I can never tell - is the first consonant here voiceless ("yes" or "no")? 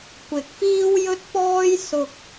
yes